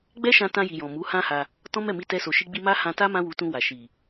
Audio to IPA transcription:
ɡ͡bɛ˦ʃã˧tã˧ji˨ jɔ̃˨mu˨˦hã˦ha˧ | tɔ̃˦mɛ˦˨mi˧ tɛ˧so˨ ʃi˧ɡ͡bi˧ ma˦ hã˧ta˦ mã˦wu˧tũ˧wa˨ ʃi˨

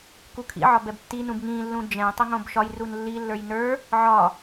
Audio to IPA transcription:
kukʰḭʕɒ bɛbtːinũb ŋĩlːũ d͡ʒɛ̃ tˤuŋõbʃɒjrun lːilːə˞j nə˞ | ʕɒ

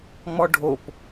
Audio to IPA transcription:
ŋ͡mɔɖʱop

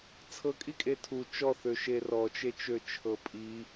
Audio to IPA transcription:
t͡sʰɤkʼikʼe tʰu t͡ʃɔθøʃe rɔt͡ʃet͡ʃøt͡ʃʰɤ pʼi

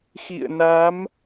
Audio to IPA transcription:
xḭ˧˨ə̯na˨˦m

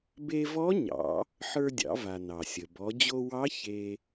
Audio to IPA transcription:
be˧vɔ˧˥ɲɑ̰˩˧ | ħə˞˧dʲɑ̰˩˧va˩ nɑ˩sʲə˩ bɔ˩˧d͡ʑo˧wɑ˧˥ çe˧

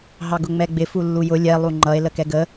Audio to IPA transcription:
ɦɑɡʊŋ͡mɛɡ͡bɪ fulːujʊ lʲɛ lˠuŋ͡ǃʌe̯ ləkɛɡə

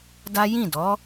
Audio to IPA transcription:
da˦ jĩ˦˨dɔ˨˦

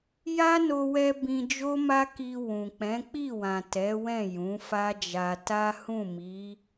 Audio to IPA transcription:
ja˦no˧wɛ˧ bĩ˧d͡ʒo˦ma˦ ki˧ wũ˨ k͡pɛ̃˨˦ k͡pi˦˨wã˨ tɛ˨˦wɛ̃˦˨ jũ˨˦fa˦d͡ʒa˧ ta˦hũ˦˨mi˨˦

